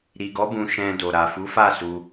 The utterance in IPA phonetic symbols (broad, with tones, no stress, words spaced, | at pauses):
ɾi˨ɡɔ˨˦ bũ˧ ʃɛ̃˧do˨ ɾa˨fu˨˦fa˦˨ su˧